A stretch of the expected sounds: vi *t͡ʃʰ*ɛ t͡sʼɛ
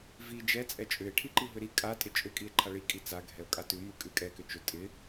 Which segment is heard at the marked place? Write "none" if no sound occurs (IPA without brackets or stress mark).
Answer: d͡ʒ